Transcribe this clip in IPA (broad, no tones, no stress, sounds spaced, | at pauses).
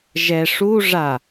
ʒ ɛ ʂ u ʐ a